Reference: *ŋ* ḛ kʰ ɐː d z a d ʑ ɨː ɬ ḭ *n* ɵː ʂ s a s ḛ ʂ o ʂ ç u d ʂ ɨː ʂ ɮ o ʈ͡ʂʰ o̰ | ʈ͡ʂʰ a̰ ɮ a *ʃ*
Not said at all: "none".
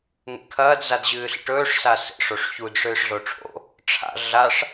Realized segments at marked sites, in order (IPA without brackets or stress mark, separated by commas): ŋ, ʈ, ʂ